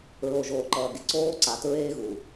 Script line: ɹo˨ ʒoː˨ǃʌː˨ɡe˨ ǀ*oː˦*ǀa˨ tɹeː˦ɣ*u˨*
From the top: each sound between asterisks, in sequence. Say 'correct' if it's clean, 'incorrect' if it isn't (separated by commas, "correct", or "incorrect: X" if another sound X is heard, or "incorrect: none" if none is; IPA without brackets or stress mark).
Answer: correct, correct